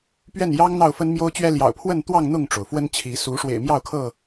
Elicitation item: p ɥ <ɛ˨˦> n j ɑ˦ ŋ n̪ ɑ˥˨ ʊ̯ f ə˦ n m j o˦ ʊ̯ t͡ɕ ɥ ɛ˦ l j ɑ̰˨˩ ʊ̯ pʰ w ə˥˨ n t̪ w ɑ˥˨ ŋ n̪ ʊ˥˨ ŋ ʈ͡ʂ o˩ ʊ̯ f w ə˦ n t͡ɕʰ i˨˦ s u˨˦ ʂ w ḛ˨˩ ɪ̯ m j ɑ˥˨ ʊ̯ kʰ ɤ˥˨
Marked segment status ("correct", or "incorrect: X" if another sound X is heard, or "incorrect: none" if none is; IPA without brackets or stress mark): incorrect: ɛ˥˨